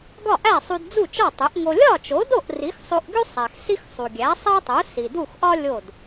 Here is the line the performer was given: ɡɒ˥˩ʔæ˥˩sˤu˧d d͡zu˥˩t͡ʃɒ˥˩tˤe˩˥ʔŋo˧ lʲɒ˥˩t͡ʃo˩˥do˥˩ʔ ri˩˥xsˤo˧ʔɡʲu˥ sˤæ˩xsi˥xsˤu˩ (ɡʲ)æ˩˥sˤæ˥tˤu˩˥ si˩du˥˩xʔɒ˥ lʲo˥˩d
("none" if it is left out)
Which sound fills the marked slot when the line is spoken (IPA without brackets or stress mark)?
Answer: ɡʲ